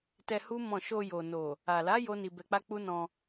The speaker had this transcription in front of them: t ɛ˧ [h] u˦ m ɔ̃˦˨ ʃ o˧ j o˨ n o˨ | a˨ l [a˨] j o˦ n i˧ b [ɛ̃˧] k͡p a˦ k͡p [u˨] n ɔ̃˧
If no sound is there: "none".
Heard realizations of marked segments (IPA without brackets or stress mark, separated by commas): h, a˨˦, ɛ˧, u˦